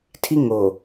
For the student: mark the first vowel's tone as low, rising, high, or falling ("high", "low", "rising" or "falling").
high